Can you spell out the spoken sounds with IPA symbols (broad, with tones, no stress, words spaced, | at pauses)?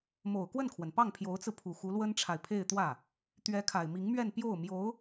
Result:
mo˨˩ʊ̯kwə˥˩nkʰwə˩n pɑ˥˩ŋpʰjo˧˥ʊ̯t͡sɹ̩˧pʰu˨˩ xu˧˥lwə˥nʈ͡ʂʰa˨ɪ̯pʰe˥˧ɪ̯ t̪wä˥˩ | t̪ɥɛ˧˥kʰa˨˩ɪ̯mi˧˥ŋmɥɛ˥˧n pjo˥˩ʊ̯mjo˧˥ʊ̯